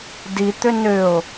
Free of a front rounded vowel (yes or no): no